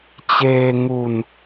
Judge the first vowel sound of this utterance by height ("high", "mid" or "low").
mid